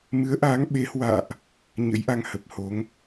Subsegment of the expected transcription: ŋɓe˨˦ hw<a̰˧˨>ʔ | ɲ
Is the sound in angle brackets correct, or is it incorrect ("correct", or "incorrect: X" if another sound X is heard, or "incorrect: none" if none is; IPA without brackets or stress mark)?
incorrect: a̰ː˧˨